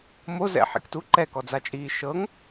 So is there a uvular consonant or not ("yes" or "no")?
no